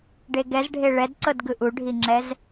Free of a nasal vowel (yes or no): yes